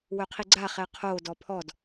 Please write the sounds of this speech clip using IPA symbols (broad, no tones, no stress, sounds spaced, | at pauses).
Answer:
w œ qʰ i ɡ͡ǀ a χ ɛ qʰ o d ɔ pʰ ɔ d